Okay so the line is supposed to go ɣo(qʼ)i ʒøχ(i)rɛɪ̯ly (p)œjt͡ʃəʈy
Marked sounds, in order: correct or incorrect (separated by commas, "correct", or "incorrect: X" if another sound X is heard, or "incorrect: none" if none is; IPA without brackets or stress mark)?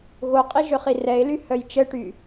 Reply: correct, correct, incorrect: h